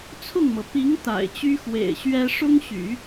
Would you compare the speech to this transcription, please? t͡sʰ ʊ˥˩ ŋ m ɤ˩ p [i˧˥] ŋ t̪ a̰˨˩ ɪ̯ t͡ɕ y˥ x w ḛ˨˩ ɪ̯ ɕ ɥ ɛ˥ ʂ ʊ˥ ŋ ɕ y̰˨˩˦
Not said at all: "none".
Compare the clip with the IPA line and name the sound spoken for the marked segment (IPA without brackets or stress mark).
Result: i˧˥